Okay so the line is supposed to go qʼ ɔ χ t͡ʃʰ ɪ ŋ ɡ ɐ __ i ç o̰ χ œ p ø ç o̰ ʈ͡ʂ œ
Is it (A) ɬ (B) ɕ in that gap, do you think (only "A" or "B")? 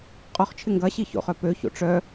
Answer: B